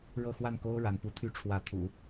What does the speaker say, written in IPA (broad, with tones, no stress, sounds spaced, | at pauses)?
ɻ ɤ˥˧ x w a˥˩ n k o˥ ʊ̯ ɻ a˧˥ n p u˧˥ t̪ʰ y˥ ʈ͡ʂʰ w ä˧˥ t̪ʰ ṵ˨˩˦